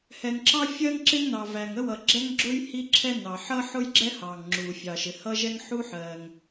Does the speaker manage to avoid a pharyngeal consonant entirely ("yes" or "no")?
no